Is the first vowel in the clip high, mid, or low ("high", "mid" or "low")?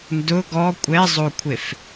high